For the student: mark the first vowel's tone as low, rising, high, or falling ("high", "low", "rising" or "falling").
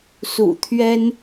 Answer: low